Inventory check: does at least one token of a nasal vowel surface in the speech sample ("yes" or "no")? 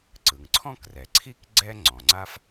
yes